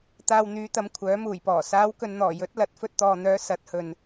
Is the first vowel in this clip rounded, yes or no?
no